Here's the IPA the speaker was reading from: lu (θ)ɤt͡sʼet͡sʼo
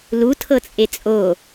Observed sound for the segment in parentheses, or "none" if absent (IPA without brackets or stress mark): tʰ